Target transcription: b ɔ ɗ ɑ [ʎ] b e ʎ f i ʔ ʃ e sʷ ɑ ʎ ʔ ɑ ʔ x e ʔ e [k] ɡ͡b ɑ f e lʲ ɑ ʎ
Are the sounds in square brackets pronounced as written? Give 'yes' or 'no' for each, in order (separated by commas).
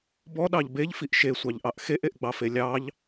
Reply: yes, no